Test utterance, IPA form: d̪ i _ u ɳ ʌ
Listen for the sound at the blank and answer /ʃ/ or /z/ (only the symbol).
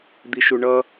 ʃ